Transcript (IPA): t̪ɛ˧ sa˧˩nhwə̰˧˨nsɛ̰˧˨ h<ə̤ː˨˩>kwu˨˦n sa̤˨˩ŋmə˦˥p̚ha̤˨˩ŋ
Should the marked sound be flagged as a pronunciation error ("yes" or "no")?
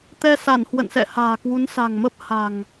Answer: yes